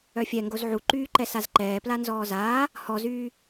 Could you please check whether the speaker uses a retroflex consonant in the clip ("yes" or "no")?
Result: no